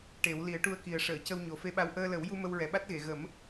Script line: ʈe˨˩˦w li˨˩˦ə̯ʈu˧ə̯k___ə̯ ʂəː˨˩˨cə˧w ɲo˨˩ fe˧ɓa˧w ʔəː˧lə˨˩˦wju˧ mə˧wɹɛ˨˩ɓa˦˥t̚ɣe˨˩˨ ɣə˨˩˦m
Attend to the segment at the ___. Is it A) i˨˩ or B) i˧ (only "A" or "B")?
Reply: A